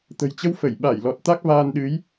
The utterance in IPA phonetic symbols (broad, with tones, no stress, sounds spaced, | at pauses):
t̪ ə̤˨˩ j t͡ɕ ə˧ w f ə˧˩ j ɓ a˧˩ j l ɔ˨˩ t̚ t̪ a˦˥ k̚ v aː˧ n ɗ ɨ˨˦ j